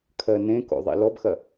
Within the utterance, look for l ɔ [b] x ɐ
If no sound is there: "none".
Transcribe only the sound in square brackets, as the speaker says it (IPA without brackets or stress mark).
b